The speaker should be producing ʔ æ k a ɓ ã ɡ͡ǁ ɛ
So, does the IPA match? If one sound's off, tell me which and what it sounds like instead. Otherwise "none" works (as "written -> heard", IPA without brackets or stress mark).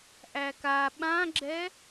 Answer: none